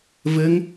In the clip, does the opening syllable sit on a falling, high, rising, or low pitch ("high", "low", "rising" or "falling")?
rising